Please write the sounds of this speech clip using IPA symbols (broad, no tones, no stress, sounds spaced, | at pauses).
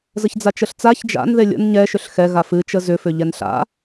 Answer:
z ə ç d͡z a t͡ʃ ə ɬ t͡s a ç d͡ʒ a̰ n ð e lʲ ə̰ n ɲ ɛ ʃ ʏ ɬ x ɛ ɣ a f ɨ t͡ʃ ə z ʏ f ʏ ʎ ɛ n ɬ a̰